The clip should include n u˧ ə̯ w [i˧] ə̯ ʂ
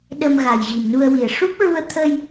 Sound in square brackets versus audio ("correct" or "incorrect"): incorrect